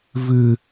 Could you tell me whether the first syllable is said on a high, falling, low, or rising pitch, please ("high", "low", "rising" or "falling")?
high